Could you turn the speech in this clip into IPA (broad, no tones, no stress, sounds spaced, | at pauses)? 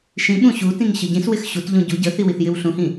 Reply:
ʃ ĩ ɓ ũ ɕ u t ĩ ŋ ɕ ə ɟ ĩ s w ɪ x ɕ u t ʎ ũ ɟ u ɟ ə θ i w i θ j ɪ w ɬ ũ h ĩ